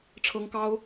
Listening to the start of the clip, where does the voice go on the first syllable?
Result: high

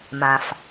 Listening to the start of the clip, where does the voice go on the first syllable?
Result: low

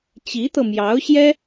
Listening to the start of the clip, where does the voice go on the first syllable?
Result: rising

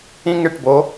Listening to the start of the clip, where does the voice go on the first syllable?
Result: high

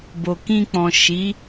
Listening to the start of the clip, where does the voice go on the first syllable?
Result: low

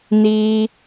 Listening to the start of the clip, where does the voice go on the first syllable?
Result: high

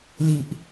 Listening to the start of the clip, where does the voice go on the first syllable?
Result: low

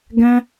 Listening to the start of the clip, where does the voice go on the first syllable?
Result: high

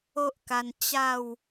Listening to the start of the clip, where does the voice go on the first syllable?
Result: high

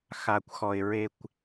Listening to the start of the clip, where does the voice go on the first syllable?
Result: low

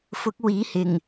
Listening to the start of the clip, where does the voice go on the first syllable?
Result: rising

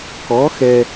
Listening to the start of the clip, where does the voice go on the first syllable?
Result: rising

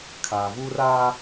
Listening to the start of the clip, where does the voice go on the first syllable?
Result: low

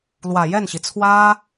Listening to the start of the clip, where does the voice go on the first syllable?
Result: low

